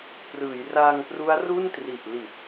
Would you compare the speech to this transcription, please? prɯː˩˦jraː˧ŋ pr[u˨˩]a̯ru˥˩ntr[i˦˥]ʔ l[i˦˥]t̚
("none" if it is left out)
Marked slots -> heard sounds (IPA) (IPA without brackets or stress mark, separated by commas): u˦˥, i˨˩, i˨˩